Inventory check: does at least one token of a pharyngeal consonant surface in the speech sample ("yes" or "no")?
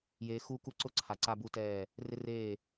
no